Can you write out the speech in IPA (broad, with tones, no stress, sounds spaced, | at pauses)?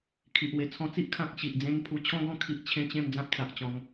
kʰ i˨ ʔ w e˨˩ t͡sʰ ɔ̃˧ t͡s i˦ ʔ kʰ ã˨ k̚ ɕ i˨ ʔ d͡z ẽ˧ n pʰ u˧ t͡ɕʰ ɔ̃˦ ɡ ɔ̃˦ kʰ i˦ ʔ t͡ɕʰ ẽ˦ t͡ɕ ẽ˥˧ m d͡z ã˦ p̚ t͡s a˨ ʔ t͡ɕ ɔ̃˧ ŋ